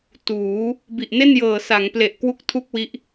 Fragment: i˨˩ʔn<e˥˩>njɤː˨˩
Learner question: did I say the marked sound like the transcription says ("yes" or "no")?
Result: yes